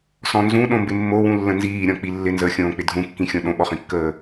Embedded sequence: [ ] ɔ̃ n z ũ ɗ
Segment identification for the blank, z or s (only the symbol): s